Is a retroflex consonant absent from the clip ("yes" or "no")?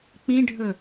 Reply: no